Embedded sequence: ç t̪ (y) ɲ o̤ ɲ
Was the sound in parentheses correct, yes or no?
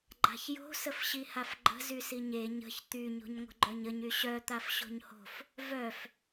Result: yes